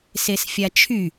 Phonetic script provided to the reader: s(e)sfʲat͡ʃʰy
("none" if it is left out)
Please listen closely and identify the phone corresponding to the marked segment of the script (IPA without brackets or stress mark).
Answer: e